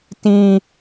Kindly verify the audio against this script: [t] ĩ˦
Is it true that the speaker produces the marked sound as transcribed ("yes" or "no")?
yes